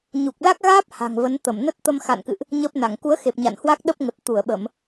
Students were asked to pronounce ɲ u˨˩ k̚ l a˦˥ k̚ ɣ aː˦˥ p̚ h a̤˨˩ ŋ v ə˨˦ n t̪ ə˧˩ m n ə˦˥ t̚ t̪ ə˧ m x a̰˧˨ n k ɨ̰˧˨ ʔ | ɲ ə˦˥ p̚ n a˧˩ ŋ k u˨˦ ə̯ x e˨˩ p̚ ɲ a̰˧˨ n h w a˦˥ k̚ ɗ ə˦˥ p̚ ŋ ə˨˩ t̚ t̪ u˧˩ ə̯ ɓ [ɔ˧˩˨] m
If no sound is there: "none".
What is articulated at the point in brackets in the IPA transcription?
ə˧˩˨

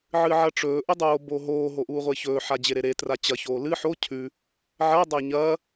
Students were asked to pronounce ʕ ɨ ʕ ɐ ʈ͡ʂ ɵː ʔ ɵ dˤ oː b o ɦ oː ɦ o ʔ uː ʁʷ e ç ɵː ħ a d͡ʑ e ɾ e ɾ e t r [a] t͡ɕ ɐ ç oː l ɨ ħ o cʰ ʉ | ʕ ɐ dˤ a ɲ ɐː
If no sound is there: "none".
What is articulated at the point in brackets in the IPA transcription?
a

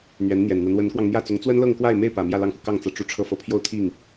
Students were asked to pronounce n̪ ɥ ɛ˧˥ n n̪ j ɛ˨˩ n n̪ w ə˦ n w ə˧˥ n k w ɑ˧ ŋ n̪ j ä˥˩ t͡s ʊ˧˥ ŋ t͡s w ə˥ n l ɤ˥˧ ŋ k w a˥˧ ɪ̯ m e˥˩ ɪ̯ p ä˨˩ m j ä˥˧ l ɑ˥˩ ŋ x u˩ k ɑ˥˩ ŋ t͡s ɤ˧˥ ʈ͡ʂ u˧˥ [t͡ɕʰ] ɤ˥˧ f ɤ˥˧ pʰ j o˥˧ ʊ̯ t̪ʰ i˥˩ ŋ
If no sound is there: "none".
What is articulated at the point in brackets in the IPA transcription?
ʈ͡ʂʰ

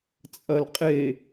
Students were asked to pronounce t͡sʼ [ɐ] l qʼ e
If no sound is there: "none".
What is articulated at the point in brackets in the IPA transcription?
ɐ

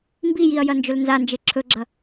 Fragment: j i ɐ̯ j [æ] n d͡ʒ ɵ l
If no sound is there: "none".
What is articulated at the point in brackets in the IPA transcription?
ɐ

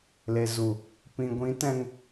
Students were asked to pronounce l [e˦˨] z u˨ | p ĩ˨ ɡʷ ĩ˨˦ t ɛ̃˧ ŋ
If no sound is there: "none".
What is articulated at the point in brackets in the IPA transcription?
e˨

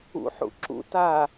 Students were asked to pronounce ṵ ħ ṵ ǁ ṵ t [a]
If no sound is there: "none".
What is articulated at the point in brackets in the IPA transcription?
a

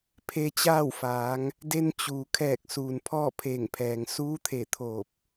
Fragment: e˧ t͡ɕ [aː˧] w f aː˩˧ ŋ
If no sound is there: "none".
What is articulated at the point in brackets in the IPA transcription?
aː˥˨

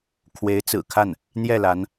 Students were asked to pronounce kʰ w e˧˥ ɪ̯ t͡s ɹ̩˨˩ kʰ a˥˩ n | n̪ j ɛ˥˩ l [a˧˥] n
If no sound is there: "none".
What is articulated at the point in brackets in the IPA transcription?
a˧˥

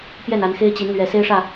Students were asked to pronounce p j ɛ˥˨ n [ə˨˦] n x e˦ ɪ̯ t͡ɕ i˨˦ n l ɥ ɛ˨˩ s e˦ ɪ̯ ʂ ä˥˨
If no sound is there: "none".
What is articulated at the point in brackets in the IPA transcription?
a˨˦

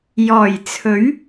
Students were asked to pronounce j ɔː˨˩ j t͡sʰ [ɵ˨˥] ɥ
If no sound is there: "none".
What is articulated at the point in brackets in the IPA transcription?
ɵ˨˥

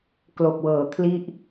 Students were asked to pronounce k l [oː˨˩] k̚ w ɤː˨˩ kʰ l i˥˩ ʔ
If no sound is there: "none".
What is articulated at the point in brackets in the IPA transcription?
o˨˩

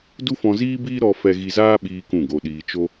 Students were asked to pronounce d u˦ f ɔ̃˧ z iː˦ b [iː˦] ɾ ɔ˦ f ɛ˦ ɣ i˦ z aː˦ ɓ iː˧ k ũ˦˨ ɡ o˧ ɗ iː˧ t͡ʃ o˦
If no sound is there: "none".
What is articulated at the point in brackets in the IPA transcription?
iː˦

